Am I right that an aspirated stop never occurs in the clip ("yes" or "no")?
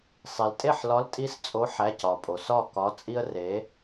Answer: yes